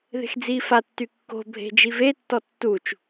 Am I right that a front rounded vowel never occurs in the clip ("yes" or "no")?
no